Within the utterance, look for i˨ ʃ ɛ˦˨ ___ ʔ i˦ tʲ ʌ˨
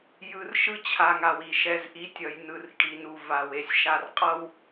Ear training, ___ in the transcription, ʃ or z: z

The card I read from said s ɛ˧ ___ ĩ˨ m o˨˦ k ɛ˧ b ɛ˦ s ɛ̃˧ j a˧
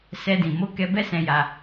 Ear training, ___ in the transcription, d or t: d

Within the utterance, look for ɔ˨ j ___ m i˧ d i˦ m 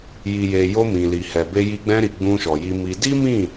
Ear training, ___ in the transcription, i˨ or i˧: i˧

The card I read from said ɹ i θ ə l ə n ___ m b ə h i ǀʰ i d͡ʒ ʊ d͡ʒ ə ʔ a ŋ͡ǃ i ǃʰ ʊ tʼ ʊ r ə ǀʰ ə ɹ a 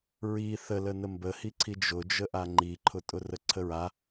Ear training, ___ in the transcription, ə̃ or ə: ə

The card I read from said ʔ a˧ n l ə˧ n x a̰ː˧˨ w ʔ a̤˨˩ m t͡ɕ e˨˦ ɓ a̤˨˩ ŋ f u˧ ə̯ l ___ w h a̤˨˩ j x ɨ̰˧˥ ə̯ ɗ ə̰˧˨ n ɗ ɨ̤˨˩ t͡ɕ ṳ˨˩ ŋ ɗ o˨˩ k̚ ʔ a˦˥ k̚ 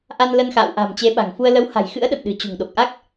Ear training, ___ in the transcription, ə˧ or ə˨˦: ə˨˦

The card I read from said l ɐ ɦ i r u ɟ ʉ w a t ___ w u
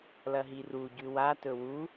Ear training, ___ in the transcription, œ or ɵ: ɵ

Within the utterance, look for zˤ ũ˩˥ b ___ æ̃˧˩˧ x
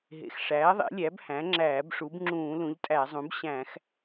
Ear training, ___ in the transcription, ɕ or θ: ɕ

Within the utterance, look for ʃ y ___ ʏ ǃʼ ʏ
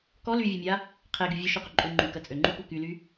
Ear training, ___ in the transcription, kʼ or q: q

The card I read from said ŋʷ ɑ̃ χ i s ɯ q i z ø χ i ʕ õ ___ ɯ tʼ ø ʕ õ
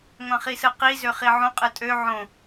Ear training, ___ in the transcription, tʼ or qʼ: qʼ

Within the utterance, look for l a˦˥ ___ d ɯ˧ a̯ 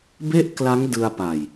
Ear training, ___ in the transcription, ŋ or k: ŋ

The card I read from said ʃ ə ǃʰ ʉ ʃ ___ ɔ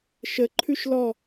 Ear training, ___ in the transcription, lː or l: l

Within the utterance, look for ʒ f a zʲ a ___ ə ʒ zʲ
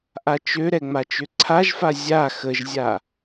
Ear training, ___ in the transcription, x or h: x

